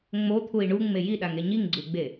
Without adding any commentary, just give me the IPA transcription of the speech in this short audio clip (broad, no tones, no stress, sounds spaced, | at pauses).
ŋ͡m o t̪ʰ u i̯ ɳ u ŋ͡m e j i ɗ a ŋ e ɲ i ŋ ɡ͡ǀ u ɡ͡b e